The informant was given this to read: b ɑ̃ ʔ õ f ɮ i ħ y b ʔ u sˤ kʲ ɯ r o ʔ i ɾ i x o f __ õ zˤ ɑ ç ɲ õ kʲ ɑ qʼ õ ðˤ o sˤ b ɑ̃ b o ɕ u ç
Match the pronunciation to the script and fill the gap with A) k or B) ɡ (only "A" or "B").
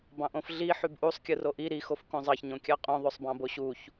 A